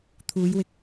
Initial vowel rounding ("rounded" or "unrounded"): rounded